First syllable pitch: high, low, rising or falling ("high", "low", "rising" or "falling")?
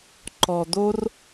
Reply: low